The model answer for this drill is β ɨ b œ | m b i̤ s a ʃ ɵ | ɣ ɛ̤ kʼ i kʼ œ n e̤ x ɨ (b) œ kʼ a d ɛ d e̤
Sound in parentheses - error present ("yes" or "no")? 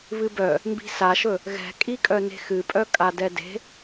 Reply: yes